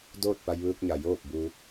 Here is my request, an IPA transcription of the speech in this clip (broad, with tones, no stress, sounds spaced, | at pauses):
d oː˥˨ t̚ p a˧ j ʋ ɯː˧ k̚ ɲ a˩ j oː˥˨ p̚ b u˧